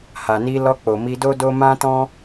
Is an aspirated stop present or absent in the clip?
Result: absent